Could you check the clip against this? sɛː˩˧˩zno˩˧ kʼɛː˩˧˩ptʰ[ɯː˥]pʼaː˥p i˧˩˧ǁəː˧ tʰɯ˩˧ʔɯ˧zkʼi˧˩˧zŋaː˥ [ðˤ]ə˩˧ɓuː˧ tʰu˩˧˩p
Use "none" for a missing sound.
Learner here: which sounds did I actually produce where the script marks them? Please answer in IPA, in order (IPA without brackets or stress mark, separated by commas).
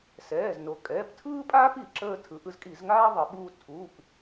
ɯː˥, ðˤ